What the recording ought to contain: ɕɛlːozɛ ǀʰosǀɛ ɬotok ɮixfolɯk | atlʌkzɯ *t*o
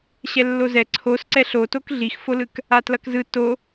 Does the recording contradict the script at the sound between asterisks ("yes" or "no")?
no